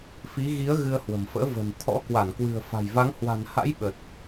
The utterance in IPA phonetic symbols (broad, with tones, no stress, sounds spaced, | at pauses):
f i˨˦ ɣ i˨˦ ə̯ ɣ ɨ˧ ə̯ h w ə̤˨˩ m f ə̰ː˧˥ v ə̤˨˩ n t̪ʰ ɔ̰˧˥ k w a˧˩ n k w ɨ̤˨˩ ə̯ f a̤˨˩ j v a˨˦ ŋ h w a̤˨˩ n h a̰˧˥ j ɓ ə˨˩ t̚